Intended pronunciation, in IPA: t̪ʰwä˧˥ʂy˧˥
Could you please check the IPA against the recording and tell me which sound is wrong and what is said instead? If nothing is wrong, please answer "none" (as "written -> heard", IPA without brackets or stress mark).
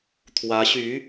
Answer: ʂ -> ɕ